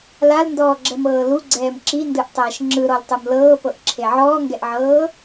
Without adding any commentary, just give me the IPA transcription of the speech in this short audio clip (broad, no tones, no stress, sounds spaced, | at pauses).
l a l n d ɔː ɡ͡ǁ ɛ m ɤː l u ɡ͡ǀ ɛː m ǁ i n d ɯ ʔ tˤ ɛː ʃ ŋ͡ǁ ɯ ɾ ɔ l tˤ u m l ɤː p ɤ ʔ ǁʰ e ʕ ɔː ŋ ɡ ɛ ʔ ʕ ɤː